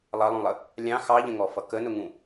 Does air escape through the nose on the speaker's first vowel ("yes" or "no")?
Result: no